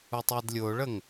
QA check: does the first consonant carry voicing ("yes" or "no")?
no